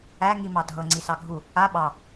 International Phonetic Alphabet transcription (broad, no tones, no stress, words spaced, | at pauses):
æ ŋimɑdʱɤ ŋ͡ǀisɑɡʱu | a ɓɑ